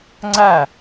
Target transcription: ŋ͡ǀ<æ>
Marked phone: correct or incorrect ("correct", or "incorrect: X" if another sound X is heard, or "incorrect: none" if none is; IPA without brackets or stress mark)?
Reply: correct